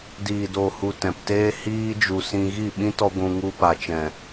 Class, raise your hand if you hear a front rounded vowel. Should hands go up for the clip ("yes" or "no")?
no